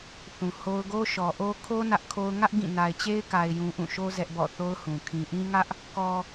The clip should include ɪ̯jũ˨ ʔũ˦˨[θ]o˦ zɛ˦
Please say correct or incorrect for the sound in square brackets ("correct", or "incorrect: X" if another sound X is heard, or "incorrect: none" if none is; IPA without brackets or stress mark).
incorrect: ʃ